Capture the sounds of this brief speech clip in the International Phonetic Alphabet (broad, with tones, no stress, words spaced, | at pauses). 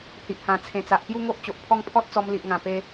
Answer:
hi˨ʔhã˨˩t͡sʰẽ˨˩t͡sa˨ʔ pju˥˧ŋo˦ʔ t͡ɕo˨ʔpʰɔ˦ŋ pʰɔ˦t̚t͡sɔ˧m li˨ʔŋã˨˩pe˧